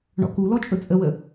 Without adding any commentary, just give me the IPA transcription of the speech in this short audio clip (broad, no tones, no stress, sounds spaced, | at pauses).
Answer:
ɳ ɔ̰ k u l ɔ t͡ʃʼ ɵ t͡sʼ ə w ə